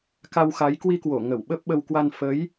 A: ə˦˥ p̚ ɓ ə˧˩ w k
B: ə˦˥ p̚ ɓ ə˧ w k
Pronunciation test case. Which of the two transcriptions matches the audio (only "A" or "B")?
B